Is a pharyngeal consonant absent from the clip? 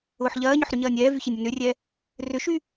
no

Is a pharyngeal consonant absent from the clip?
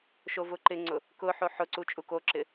no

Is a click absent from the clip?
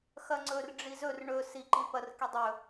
no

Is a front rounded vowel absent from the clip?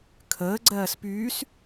no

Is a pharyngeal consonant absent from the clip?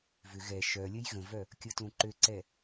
yes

